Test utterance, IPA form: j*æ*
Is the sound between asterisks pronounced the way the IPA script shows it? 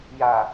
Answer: no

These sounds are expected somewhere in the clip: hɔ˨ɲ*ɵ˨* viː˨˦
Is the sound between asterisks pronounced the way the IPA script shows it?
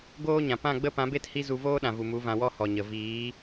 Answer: no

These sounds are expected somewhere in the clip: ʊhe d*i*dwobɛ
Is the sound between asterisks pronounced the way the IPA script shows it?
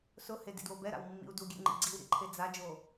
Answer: no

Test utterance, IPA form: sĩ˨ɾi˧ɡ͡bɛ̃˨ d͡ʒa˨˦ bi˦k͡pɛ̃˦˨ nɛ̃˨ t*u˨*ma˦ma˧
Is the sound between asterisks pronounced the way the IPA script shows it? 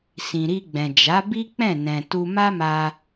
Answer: no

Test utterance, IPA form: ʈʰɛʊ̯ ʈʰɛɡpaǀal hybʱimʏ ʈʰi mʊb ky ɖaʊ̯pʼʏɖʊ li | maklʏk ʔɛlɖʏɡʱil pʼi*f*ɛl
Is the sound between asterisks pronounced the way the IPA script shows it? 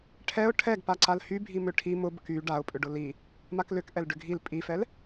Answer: yes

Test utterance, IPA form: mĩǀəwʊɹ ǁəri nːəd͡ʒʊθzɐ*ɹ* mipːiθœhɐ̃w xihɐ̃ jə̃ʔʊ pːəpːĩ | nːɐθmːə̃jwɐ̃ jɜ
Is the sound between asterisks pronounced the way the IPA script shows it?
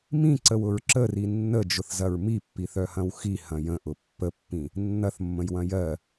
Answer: yes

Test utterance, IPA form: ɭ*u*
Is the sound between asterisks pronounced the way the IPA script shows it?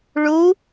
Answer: yes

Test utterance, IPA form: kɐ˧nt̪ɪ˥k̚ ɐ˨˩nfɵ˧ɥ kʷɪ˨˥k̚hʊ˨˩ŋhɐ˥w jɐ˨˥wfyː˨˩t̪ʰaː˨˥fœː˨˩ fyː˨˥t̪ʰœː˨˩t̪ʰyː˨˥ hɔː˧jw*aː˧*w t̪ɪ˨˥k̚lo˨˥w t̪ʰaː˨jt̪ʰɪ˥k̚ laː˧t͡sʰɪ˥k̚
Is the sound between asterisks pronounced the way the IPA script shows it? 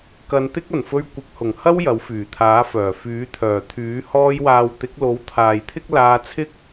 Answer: no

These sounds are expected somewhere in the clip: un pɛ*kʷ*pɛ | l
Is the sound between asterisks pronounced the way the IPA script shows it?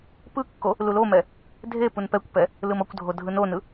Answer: yes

